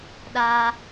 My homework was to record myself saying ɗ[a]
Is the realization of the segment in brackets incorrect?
no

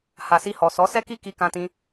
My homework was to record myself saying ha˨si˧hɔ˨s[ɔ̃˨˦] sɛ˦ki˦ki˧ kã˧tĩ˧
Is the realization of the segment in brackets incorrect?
yes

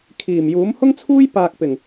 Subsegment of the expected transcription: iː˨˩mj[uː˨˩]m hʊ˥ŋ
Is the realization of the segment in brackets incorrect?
yes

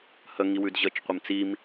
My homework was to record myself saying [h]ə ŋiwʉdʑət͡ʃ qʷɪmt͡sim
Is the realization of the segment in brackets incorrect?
no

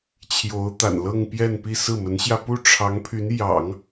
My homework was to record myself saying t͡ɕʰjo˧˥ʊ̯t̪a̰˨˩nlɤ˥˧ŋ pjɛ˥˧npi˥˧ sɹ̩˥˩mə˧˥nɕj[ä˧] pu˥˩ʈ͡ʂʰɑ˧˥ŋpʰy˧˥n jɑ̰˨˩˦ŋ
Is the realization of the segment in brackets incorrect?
no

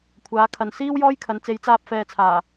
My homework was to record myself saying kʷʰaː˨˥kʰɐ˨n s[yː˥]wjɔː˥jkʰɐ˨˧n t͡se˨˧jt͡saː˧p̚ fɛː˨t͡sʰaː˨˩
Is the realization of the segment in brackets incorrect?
yes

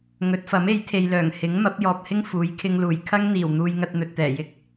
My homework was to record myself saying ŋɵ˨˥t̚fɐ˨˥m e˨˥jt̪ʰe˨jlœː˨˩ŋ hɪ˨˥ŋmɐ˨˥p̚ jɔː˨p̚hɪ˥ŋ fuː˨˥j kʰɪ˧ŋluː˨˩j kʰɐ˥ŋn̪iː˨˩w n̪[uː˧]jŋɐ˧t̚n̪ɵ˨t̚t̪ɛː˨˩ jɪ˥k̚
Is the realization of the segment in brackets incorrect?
no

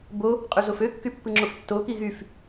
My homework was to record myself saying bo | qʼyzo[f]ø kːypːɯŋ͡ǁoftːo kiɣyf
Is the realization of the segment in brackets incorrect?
no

